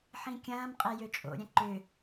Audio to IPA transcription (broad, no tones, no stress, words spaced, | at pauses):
ħĩkʲɐ̃ːm qʼɛjøt͡ʃʼo̰ ɾʲɛ̃ǃʏ